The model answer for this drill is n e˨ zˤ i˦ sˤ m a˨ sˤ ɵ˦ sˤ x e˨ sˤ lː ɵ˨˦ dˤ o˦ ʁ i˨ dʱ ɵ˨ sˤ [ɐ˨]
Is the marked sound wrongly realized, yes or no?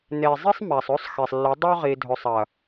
no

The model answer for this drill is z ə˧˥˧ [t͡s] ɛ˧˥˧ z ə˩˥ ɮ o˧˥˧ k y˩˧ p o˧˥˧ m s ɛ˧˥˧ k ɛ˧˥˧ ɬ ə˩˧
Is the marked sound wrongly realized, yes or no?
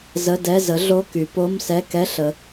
yes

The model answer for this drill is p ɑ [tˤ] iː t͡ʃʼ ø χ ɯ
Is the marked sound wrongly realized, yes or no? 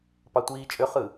yes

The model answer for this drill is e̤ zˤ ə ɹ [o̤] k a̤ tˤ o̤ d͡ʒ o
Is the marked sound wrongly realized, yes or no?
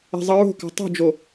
no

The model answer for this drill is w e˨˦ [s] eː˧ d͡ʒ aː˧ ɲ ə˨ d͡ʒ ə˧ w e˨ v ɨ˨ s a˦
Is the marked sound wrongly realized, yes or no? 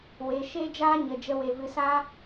yes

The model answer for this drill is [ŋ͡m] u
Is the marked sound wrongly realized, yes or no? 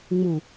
no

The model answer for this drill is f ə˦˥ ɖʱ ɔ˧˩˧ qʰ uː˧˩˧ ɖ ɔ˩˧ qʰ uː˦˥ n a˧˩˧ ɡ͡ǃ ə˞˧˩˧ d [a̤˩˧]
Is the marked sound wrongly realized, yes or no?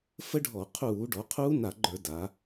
yes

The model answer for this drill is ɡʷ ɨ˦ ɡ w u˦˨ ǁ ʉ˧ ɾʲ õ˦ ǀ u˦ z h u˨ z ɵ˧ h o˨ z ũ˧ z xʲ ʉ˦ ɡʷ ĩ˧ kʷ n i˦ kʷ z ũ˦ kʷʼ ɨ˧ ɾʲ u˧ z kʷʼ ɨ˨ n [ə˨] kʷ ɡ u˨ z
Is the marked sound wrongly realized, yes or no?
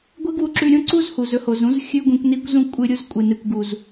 yes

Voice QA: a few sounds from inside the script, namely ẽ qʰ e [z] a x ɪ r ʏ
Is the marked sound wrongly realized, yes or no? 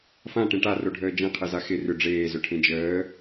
no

